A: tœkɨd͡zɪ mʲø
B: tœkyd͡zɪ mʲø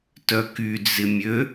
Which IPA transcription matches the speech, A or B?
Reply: B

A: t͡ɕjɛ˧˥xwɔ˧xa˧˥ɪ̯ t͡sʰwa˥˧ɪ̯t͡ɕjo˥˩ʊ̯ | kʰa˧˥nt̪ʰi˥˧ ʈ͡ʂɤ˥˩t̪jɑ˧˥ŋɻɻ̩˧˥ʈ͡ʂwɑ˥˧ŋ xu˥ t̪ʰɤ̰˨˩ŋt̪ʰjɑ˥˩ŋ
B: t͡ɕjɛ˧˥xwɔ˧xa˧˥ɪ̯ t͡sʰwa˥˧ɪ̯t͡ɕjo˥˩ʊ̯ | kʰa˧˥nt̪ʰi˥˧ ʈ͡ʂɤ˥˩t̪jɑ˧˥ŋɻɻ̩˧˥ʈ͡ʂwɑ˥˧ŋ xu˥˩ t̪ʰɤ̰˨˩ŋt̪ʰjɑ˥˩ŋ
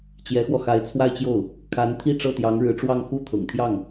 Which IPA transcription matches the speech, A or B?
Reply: B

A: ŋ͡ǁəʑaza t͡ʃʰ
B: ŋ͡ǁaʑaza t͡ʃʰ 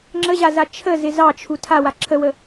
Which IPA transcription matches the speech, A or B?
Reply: A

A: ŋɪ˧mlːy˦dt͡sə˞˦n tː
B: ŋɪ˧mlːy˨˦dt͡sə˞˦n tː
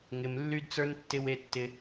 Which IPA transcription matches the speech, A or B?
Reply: A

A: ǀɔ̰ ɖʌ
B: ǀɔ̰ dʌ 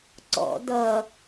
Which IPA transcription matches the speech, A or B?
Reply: B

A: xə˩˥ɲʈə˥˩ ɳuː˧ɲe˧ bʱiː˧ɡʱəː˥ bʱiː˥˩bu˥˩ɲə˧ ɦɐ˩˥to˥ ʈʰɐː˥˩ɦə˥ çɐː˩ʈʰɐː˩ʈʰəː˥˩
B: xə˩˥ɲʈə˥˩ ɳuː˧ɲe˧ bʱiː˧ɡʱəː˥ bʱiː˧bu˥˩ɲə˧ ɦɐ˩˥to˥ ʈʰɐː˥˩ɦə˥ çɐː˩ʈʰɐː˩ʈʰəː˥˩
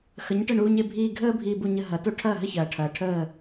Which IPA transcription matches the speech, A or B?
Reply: B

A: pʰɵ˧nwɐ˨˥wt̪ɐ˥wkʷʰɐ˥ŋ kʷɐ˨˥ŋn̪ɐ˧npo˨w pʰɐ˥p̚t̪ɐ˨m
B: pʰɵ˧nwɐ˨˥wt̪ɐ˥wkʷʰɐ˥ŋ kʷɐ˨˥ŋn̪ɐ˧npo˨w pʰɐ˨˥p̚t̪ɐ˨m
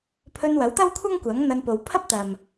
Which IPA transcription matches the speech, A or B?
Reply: A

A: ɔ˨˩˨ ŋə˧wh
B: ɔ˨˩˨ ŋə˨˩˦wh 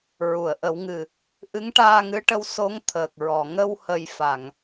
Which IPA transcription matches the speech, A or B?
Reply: A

